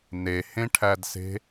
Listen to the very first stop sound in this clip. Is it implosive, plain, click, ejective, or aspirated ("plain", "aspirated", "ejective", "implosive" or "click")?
aspirated